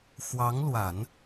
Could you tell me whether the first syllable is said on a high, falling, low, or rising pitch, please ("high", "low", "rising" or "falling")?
rising